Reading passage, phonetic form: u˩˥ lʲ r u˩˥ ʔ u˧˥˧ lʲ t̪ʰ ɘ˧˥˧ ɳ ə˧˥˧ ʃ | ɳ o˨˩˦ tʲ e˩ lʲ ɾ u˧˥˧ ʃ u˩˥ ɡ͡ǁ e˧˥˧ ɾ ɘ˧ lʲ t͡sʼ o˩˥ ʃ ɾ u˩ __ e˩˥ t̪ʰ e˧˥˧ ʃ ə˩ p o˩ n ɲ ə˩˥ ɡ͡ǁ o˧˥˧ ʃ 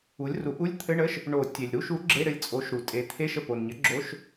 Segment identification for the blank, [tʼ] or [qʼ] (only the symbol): tʼ